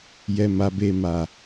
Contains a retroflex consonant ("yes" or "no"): no